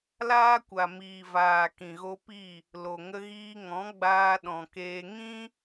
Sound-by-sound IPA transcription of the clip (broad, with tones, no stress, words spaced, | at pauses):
laː˦kʷa˨ miː˨ vaː˨ kĩ˨ɣo˧pi˦˨ | lo˨ŋə˧ɣiː˧ŋɔ̃˨˦ ɡ͡baː˧ɗɔ̃˨keː˧ ŋĩ˦